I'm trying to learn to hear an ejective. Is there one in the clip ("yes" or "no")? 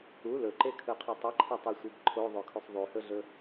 no